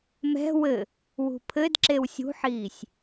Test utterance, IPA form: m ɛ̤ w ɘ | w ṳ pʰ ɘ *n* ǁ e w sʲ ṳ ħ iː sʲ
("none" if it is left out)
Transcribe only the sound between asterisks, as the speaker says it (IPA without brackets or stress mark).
d